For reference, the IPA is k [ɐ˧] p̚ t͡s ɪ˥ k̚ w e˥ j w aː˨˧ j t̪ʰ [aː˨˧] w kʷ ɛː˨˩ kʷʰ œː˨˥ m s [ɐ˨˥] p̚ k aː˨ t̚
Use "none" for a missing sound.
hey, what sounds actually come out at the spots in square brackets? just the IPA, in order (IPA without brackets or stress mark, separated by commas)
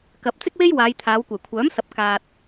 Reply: ɐ˨, aː˨˧, ɐ˨